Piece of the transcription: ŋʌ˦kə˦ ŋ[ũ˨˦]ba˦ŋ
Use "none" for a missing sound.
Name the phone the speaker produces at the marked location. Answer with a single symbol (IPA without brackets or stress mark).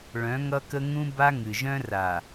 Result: ũ˦